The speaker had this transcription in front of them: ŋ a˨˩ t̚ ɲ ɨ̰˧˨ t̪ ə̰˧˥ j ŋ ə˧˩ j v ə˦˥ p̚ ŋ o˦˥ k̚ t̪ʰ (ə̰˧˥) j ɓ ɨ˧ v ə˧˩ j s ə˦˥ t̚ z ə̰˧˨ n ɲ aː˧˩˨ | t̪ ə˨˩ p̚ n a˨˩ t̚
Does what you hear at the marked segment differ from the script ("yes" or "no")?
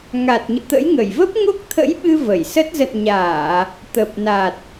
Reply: no